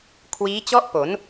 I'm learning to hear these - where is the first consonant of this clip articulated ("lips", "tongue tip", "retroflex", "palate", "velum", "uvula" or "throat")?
velum